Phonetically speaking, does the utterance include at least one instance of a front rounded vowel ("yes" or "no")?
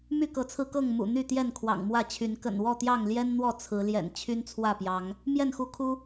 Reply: yes